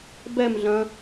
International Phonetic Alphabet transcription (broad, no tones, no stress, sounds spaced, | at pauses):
b ɛ m ɮ ɐ̃